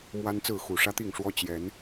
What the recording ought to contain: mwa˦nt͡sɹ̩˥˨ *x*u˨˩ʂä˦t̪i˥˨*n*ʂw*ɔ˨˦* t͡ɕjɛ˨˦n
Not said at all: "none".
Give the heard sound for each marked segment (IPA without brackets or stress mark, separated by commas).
x, ŋ, ɔ˦